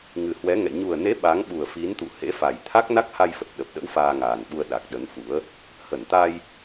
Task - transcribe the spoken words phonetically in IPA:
ŋ ɨ˨˩ h w ɛ˨˦ ŋ ɛ̰˧˨ ɲ u˨˩ ə̯ n e˨˦ ɓ a˨˦ ŋ ɓ u˨˩ ə̯ f i˨˦ n t̪ ṵ˧˨ h ḛ˧˥ f a˨˩ j t̪ʰ a˦˥ k̚ n a˦˥ k̚ h a˧ j f ə˨˩ t̚ ɗ ə˨˩ p̚ ɗ ə̰˧˥ w f aː˧ ŋ aː˨˩ n ɓ u˧ ə̯ ɗ a˨˩ k̚ ɗ ə˨˦ n f ṵ˧˥ ə̯ | h ə˧˩ n t̪ a˧ j

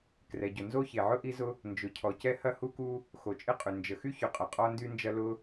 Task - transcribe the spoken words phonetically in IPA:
k r ɛ˩ ɟ ʊ˩ n z o˥ ç e˩ ʕ ʊ˥ ʔ i˥ z ʊ˥ | n d͡ʒ ʊ˩ cʰ ɔ˩ c ɛ˥ h ɐ˥ h u˥ k u˥ | x o˩ t͡ʃʼ ɪ˥ qʼ ʏ˩ n d͡ʒ ə˩ x y˥ ç ʏ˩ qʼ ɐ˩ qʼ ɔ˥ n d y˥ n d͡ʒ ɐ˥ l ʊ˥

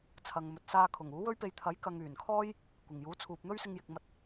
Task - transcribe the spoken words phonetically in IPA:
t͡sʰ ɐ˨ ŋ m ɵ˨ t̚ s aː˧ kʰ ʊ˨˩ ŋ uː˨˥ w ɵ˥ ɥ p e˧ j t̪ʰ ɐ˨˥ j k ɐ˨ ŋ yː˨˩ n kʰ ɔː˥ j | kʷ ɪ˨˩ ŋ j uː˨˥ t͡sʰ uː˨ p̚ n̪ ɵ˥ ɥ s ɪ˧ ŋ j ɪ˨ k̚ m ɐ˧ t̚

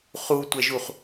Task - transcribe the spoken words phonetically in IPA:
χ u tʷ ɛ ʒ u χ

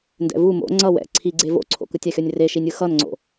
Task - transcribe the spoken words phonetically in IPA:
n d ɛ̰ v u m o̰ ŋ͡ǀ ʌ w ɛ̰ ǀʰ i ɡ͡ǀ e v o̰ ǀʰ o̰ k ɯ tʲ a xʲ ʌ nʲ r e ʃ i nʲ ɯ x ʌ n ŋ͡ǀ o̰

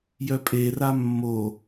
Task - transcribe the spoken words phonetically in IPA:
j œ pʼ e r a mː o

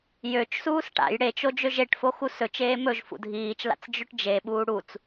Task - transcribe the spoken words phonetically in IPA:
j ø t͡ʃ s uː s ʈ a̰ j ɽ e t͡ʃ o d͡ʒ ø ʒ e ʈ f o x u s ɵ t͡ʃ eː m ɵ ʒ f ṵ dʱ iː t͡ʃ l a̰ t͡s d͡ʒ ɵ ʈ d͡ʒ e ɓ uː ɽ u t͡s

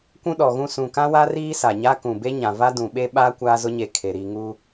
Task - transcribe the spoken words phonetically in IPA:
kʷ ũ˦ ɗ ɔ˨ ɣ ũ˦ s ũ˨ k ã˦ w a˦ r iː˦ s a˨ ɲ a˦ k ũ˨ b e˦ ɲ ã˨ v a˦ d ũ˨ ɓ e˦ ɓ a˦ kʷ a˦ z ʊ˦ ɲ e˨ kʰ e˨ ɾ iː˨ ŋ u˦

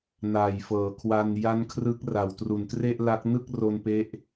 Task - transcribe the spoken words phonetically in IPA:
n aː˨˩ j f ɤː˨˩ kʰ w a˧ n j a˦˥ n kʰ r ɯ˦˥ k̚ r a˨˩ w t r u˨˩ n t r e˥˩ ʔ l a˦˥ k̚ n ɯ˥˩ k̚ r o˧ n p e˦˥ ʔ

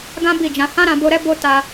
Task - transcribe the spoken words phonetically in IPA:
ɡ ã˦ b i˦˨ d͡ʒ ã˧ h ã˦ ɾ ã˧ b o˧ ɾ ɛ˦ b o˦ t a˧

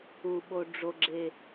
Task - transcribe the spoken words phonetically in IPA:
u ɓ o ɖ͡ʐ o ɡ͡ǁ e

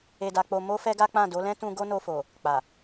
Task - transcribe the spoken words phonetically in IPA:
e˧ d a˧ k͡p o˧ m o˦ f ɛ˦ ɡ a˦ k͡p ã˦˨ d o˨˦ l ɛ̃˦ t ũ˧ ɡ o˦ n o˧ f o˨ | k͡p a˨

